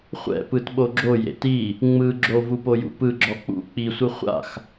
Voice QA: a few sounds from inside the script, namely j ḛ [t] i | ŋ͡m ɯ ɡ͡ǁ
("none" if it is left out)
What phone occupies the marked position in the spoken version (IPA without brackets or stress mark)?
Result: t